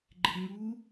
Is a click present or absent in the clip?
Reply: present